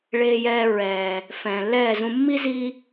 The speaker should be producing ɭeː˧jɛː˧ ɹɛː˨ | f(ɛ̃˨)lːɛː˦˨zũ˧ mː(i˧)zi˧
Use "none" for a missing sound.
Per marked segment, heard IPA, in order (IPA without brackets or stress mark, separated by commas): ɛ̃ː˨, i˦